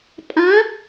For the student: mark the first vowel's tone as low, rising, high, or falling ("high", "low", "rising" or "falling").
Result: rising